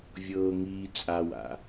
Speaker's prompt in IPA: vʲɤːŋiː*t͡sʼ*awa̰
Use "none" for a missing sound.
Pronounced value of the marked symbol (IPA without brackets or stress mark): t͡sʼ